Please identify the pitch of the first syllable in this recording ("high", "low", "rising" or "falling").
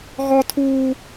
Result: high